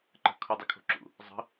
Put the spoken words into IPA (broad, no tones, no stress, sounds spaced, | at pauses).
ǃ ə̤ kʰ u dˤ u kʰ o̤ ǁ ṵ | zˤ ə̤